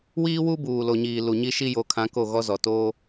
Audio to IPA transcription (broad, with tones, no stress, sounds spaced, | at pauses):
w iː˦ w u˦ b uː˨ l o˨ ɲ iː˨ l u˨ ɲ i˦ ʃ i˦ j o˨˦ kʰ ã˨˦ k o˦˨ ɣ ɔ˦ z ɔ˨ t oː˦